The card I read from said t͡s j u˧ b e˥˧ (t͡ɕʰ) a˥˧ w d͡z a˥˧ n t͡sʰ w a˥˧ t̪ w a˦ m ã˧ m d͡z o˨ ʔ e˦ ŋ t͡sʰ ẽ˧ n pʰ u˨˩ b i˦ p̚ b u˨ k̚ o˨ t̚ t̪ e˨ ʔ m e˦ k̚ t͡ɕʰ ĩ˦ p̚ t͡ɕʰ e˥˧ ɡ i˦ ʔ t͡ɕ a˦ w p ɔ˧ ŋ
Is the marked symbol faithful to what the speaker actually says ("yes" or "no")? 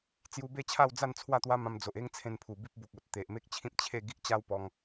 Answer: yes